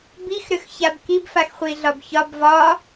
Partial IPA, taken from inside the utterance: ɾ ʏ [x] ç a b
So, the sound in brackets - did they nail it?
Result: yes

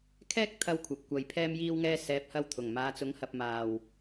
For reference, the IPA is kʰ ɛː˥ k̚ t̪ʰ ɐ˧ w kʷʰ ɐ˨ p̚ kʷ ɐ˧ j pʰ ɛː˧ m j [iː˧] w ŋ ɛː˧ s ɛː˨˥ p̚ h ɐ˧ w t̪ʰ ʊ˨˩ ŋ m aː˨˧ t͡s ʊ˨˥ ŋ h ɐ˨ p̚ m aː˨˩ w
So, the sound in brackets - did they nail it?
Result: yes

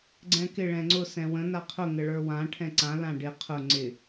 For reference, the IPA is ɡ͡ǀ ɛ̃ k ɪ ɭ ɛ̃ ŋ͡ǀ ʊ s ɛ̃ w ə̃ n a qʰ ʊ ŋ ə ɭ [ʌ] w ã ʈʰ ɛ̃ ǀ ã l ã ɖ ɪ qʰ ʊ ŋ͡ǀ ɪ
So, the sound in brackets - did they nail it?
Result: no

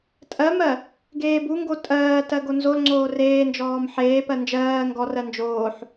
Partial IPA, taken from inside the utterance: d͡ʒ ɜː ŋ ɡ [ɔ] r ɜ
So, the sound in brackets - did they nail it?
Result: yes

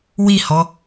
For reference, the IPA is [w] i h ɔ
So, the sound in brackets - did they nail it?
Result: yes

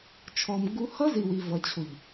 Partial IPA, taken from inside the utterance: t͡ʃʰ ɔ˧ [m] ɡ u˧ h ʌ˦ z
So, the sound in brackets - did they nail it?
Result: yes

